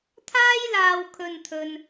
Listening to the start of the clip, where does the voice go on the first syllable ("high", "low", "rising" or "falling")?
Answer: high